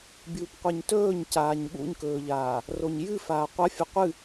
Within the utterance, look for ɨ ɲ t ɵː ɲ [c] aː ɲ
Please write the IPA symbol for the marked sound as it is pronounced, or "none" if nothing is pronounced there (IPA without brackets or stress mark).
c